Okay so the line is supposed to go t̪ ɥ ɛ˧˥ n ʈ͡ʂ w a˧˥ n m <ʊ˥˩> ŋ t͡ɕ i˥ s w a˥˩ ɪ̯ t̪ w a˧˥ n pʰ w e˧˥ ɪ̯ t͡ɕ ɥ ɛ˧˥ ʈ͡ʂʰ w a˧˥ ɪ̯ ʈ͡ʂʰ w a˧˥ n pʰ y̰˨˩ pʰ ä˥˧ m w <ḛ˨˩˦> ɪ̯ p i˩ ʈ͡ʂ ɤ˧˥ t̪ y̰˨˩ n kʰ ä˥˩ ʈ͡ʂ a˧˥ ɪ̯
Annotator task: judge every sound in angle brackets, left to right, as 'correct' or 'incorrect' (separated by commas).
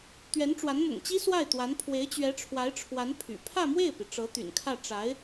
incorrect, incorrect